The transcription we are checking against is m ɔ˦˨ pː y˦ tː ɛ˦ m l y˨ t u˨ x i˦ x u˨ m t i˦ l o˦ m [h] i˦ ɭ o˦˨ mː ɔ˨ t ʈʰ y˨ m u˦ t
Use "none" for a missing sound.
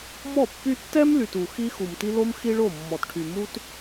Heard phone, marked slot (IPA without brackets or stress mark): x